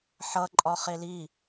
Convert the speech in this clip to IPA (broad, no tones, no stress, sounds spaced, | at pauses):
ħ ʌ ǃʼ ɒ χ e l i